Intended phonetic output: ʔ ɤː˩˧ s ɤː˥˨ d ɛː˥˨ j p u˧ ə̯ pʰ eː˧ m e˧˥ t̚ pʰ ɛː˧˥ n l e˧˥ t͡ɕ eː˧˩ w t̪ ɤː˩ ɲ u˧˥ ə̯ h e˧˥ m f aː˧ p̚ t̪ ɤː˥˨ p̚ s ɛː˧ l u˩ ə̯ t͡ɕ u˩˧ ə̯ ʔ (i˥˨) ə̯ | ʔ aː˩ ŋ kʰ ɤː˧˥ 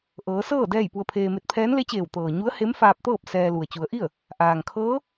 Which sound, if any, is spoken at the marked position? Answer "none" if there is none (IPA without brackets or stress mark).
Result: i˥˨